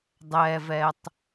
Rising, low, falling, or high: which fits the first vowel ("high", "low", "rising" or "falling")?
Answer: low